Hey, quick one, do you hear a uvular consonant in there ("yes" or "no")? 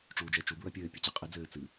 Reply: yes